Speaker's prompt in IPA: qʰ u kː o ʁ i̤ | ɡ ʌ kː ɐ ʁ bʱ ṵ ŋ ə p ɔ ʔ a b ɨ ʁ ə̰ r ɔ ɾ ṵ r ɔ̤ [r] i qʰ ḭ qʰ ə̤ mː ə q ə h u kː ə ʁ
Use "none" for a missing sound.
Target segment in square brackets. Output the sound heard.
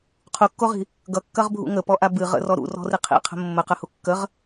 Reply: r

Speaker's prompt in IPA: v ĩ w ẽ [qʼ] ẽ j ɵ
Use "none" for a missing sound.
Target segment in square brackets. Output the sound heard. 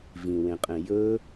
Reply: qʼ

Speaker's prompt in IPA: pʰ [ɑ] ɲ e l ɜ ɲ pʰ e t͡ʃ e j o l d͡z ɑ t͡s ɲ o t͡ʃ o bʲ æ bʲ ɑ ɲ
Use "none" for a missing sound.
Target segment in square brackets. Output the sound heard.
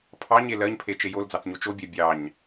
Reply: ɑ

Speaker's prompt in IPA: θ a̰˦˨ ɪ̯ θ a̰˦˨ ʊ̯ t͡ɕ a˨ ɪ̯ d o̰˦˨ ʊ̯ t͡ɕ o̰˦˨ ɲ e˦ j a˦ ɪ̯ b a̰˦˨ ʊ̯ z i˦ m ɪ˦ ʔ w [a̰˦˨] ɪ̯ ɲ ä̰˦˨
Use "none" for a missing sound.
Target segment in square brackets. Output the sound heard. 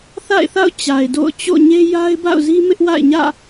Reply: a̰˦˨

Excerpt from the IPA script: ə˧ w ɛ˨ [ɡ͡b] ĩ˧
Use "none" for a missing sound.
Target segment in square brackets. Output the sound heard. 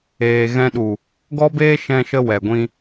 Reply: ɡʷ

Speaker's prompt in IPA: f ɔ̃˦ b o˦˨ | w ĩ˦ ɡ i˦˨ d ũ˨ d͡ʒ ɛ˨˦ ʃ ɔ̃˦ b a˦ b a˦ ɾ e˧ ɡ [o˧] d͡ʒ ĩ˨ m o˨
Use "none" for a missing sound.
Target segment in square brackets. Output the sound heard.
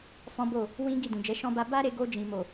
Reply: o˧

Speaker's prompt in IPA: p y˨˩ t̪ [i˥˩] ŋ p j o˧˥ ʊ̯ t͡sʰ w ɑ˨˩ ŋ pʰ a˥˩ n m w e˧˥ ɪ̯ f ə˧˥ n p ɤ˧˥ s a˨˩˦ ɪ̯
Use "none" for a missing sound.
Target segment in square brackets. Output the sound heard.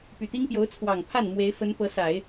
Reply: i˥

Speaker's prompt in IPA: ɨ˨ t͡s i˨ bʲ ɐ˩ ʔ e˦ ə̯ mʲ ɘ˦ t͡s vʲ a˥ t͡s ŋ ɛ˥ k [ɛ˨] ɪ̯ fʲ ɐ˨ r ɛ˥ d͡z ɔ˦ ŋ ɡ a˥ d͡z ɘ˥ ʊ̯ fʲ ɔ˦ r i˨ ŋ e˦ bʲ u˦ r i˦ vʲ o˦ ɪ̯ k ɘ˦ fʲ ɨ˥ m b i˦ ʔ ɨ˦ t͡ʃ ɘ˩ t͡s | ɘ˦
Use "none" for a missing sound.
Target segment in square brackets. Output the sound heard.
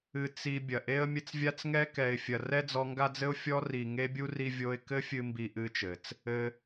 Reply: ɛ˨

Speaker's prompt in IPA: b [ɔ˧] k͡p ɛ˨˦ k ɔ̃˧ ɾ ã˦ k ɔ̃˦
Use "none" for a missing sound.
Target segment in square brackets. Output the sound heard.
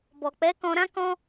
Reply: ɔ˨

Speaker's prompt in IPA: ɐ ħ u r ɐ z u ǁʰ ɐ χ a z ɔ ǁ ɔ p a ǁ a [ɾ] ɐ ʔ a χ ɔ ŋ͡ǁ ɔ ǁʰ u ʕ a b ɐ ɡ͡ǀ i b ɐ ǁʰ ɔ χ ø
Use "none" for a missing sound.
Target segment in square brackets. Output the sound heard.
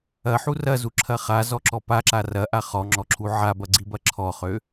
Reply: r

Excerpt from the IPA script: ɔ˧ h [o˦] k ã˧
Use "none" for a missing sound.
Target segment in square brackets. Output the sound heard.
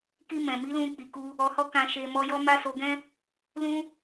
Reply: ɔ˦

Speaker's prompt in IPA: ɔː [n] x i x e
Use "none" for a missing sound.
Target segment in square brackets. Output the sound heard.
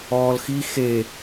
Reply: l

